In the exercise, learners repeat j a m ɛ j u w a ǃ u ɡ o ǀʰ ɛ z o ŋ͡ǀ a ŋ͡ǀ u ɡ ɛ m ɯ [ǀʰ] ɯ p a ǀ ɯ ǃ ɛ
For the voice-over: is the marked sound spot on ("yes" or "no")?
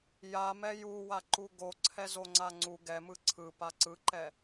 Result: yes